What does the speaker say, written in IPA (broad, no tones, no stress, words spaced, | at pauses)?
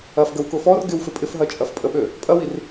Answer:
ɐfɡəwkʊ fɔr ɡɪwfɪ pʼɪfɦɐt͡ʃʼɐf pʼəɓø | pʼɐwir